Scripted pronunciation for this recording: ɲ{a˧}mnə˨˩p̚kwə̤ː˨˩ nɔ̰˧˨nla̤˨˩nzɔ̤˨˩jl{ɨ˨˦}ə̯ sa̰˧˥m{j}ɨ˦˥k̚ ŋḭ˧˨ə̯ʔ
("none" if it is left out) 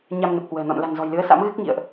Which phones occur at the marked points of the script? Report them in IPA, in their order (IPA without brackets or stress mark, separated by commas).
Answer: a˧, ɨ˨˦, ɣ